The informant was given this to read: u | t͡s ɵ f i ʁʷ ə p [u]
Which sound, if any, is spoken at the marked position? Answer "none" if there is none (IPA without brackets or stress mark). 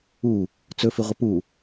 u